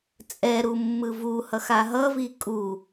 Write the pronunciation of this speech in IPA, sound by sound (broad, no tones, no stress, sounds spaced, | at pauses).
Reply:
t͡sʼ ɛ ɾ u mː ɯ v u h ʌ x a ɦ ʌ v i kʼ u